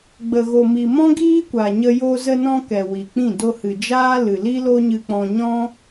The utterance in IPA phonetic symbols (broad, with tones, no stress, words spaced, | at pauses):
ɡ͡bə˨ɣo˨mi˨ mɔ̃˦ɡiː˦kʷa˨ɲə˧ jo˧zə˧nɔ̃˧ kɛ˨ wi˨k͡pĩ˦˨ do˧hɨ˨ d͡ʒaː˦lɨ˨ li˦lo˦ɲɨ˧k͡pɔ̃˧ ɲɔ̃˦